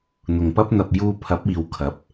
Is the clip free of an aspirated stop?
no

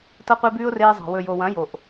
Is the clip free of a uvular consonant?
no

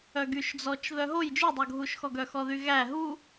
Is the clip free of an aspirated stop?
yes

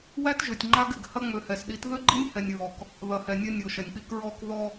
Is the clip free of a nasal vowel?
yes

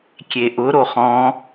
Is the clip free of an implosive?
yes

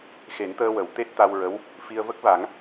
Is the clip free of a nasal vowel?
yes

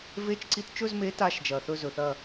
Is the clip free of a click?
no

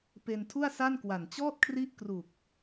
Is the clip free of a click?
yes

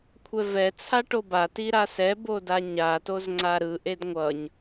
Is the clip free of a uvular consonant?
yes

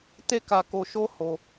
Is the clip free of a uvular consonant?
yes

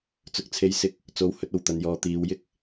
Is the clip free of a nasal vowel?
yes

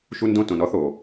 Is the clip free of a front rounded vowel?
yes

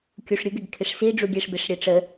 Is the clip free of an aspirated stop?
no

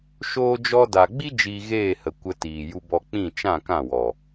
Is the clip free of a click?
yes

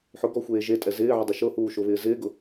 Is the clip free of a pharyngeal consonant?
no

